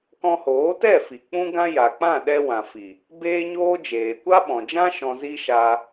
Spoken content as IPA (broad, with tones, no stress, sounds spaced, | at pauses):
k ɔ̃˧ h oː˨˦ t ɛ˦˨ f i˨ k͡p ũ˦ ɡ ã˦ j a˨ k͡p ã˦˨ ɗ ɛ˧ w ã˨ f i˨ | b eː˦ ɲ oː˦ d͡ʒ eː˨ kʷ a˦ ɓ ɔ̃˨ d͡ʒ ã˦ ʃ ɔ̃˧ z i˦ ʃ a˧